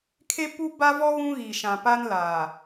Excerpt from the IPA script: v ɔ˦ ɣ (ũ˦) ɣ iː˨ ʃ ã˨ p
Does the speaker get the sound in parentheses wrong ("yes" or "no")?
no